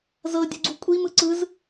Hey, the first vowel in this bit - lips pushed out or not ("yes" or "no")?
no